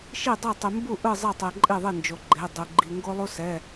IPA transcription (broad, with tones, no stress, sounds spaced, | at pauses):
ʃ i˥˨ dˤ e˥˨ tˤ i˧ m b u˥˨ ʔ ɯ˥˨ zˤ ɛ˥˨ tˤ e˧ ǃʼ i˥˨ ðˤ i˥˨ n d͡ʒ o˧ ɡ͡ǃ e˧˥˧ dˤ u˧ ɡ͡ǃ i˧ ŋ ɡ o˥ lˠ u˥ s ɛ˧˥˧